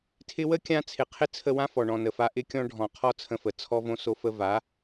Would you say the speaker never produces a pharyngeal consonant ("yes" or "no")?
yes